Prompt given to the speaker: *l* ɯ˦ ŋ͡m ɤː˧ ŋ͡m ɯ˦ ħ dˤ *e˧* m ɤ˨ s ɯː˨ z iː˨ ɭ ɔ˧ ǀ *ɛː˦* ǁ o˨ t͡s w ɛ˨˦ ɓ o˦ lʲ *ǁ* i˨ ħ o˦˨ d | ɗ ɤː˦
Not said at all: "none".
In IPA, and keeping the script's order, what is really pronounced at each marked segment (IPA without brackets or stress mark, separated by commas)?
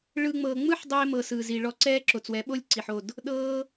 ɭ, eː˧, ɛː˦, ǀ